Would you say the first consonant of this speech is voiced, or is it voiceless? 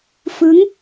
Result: voiceless